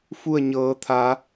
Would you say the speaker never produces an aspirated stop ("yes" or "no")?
no